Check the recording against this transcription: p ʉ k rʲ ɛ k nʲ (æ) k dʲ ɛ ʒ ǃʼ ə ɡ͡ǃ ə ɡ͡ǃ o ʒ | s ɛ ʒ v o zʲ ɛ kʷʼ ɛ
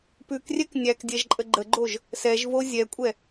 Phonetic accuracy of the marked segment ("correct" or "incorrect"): correct